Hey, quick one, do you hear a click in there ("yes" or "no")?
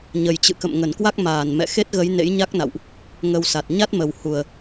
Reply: no